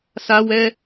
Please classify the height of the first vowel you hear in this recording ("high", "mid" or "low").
low